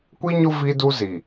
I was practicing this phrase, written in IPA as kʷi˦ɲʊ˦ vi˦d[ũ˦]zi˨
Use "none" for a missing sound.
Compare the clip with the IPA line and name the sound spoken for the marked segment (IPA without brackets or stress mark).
u˦